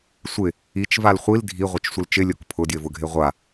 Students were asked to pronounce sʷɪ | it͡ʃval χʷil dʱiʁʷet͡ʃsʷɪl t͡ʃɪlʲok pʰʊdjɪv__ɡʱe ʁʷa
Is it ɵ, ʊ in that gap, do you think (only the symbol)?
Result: ʊ